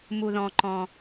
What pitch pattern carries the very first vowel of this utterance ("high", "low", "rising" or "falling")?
low